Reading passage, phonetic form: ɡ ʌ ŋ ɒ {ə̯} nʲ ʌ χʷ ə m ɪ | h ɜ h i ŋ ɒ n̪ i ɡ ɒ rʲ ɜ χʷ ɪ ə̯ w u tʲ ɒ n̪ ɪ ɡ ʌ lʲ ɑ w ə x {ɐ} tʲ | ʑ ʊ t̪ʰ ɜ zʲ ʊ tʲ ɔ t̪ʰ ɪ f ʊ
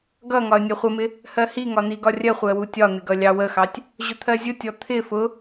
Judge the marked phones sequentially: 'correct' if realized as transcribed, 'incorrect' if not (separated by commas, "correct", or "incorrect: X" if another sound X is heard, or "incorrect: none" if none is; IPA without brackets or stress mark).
correct, incorrect: ɑ